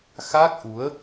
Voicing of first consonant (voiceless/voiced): voiceless